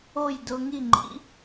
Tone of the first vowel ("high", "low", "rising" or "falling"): falling